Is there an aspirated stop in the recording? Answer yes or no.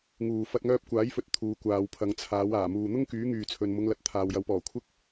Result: yes